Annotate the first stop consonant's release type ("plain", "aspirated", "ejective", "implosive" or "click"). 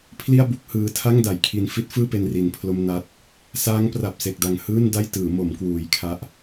aspirated